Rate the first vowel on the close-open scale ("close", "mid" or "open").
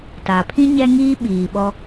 open